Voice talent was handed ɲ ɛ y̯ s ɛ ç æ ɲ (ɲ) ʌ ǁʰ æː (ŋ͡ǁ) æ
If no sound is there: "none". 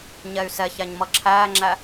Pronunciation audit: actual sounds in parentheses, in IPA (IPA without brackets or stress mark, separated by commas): m, ŋ͡ǁ